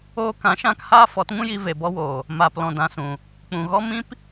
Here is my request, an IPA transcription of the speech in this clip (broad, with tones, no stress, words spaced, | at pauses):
oː˧kã˨˦ ʃã˧k haː˦fɔ˨˦tŋũ˦ji˧ ve˨bɔ˧woː˨ | maː˨plɔ̃˨dã˨sũ˨ | k͡pũ˨ɣɔ˦ mĩ˦p